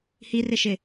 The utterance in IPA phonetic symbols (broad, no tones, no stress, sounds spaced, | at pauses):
h i r ɪ ʃ ɪ